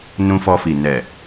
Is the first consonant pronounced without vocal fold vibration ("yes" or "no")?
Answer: no